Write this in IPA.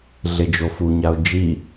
ɮ e d͡ʒ o f u ɲ a ʊ̯ d͡ʒ i

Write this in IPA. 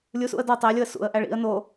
lʲ u s ṵ ə̯ d ɒ tˤ æ lʲ o ə̯ s ṵ ə̯ ʔ æ ɭ ḭ ə̯ n o

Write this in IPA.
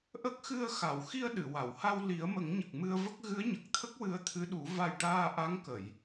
ʔ ə˦˥ k̚ x ɨ˧ ə̯ x a˨˩˨ w x i˧ ə̯ ɗ ɨ˨˩˨ w a˨˩˨ w h a˧ w l i˨˩˦ ə̯ m ə˨˩˦ ŋ ɲ ə˨˩ k̚ m ɨ˧ ə̯ v ə˦˥ k̚ ɣ ɨ˧˥ ə̯ ɲ ə˨˩ k̚ t̪ʰ ə˦˥ k̚ w ɨ˧˥ ə̯ t̪ʰ ɨ˧˥ ɗ u˨˩˦ v a˨˩ j ʈ aː˧ ʔ a˧˥ ŋ k ə˨˩˨ j

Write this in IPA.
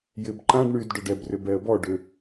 j ɪ b ǃ ã ɖ ɳ y d ɖ ʊ ɖ ɛ b r ʏ b ɛ ə̯ b ɔ ɖ ʏ

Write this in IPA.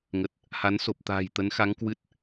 ŋ ə˨˩ t̚ | h a˨˦ n s o˨˩ p̚ t̪ a̤ː˨˩ j t̪ ə˨˦ n x a˨˦ ŋ k w ɨ˦˥ t̚

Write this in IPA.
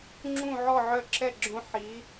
ŋ͡ǁ ũ˥˨ ʕ ɔ˥˨ ʕ œ˦˥ ǁ ɛ˥˨ ɡ͡ǁ õ˦˥ ħ i˨˥

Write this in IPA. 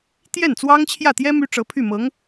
t̪ j ɛ˥˩ n t͡s w ɑ˥ ŋ t͡ɕʰ j ä˥˩ t̪ j ɛ˥ m y˥ ʈ͡ʂ ɤ˧˥ pʰ y˥˩ m ɤ˧˥ ŋ

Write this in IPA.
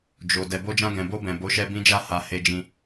d͡ʒ o˨ d ɛ˨ b o˧ d͡ʒ ã˧ ɡ ɛ̃˨ b o˧ b ɛ̃˨ b o˨˦ ʃ ɛ˧ b ĩ˧ d͡ʒ a˧ h a˨ h e˧ d͡ʒ ĩ˧

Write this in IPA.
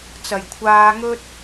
t͡s ɐ˨˩ j kʷʰ aː˧ ŋ ɵ˥ t̚

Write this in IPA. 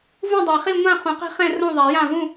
v ũ˥˨ dˤ a˨˩˦ χ i˥˨ ŋʷ ã˥˨ χ ũ˨˩˦ q ɛ̤˥˨ χ ɛ̃˥˨ r õ˥˨ ðˤ a˨˩˦ j ã˥˨ v ũ˥˨

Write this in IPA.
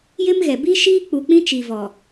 j ɪ˦ m ɣ ɛ˨ b i˦ ʃ iː˦ k͡p u˨ k͡p ĩ˦ t͡ʃ i˨ v ɔ˨

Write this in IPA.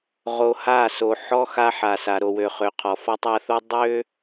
ʁ o˨ h a˦˨ s o˨ ħ ɔ˦ x a˦ ħ a˨ s a˨ ɾ o˨ w ø˨ χ ø˨ qʰ ɔ˨ f ɔ˦ tˤ a˦ θ o˦ dˤ ø˦

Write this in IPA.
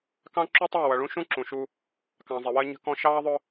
k ɑ̃˦ ǁ u˦ tˤ ɜ˦˨ w ʌ˨ ɭ ũ˦ ʃ ũ˦ ǁ ũ˨ ʃ u˦ | k ɑ̃˨ zˤ ɪ˨ w ɜ˦ ɲ ə̤˦ k ɔ̃˦ ʃ ɑː˦ ðˤ ʊ˦

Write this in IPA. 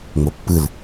ŋ͡m o pː ɯ l

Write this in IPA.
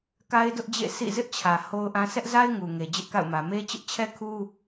k a˦ ɪ̯ d ʊ˦ ʔ d͡ʑ ḛ˦˨ sʰ ḭ˦˨ z ɪ˦ ʔ t͡ɕʰ ä˨ h o˦ ʊ̯ ʔ ã˦ sʰ ɛ˦ ʔ z a˦ ɪ̯ ŋ u˨ ŋ e˨ d͡ʑ ɪ˦ ʔ k a̰˦˨ ʊ̯ m ä˨ m e˦ t͡ɕ ɪ˦ ʔ t͡ɕʰ ɛ˦ kʰ u˦

